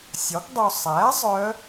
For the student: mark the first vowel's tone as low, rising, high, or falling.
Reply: rising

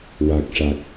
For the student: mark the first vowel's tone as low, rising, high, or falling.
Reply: low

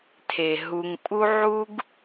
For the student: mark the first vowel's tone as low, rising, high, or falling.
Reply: low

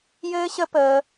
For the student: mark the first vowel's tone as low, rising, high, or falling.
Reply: high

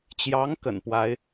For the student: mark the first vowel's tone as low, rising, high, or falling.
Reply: rising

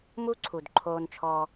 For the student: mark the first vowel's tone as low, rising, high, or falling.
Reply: high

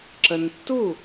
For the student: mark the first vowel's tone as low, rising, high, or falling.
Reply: low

